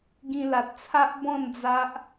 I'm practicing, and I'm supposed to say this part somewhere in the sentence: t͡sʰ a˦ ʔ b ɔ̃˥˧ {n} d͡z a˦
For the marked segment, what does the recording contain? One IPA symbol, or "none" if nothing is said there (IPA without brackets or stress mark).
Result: n